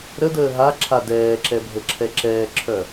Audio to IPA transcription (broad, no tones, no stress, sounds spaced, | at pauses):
ɾ ə d əː ɦ a ǁʰ a d ɛː ǁ ɛ bʱ ə ǁʰ ɛ ǁ ɛː ǁʰ œ